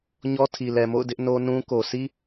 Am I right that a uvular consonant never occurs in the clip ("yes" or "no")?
yes